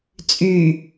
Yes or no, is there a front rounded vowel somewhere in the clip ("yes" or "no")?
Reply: yes